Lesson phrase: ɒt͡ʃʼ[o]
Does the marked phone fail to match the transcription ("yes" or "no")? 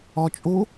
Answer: no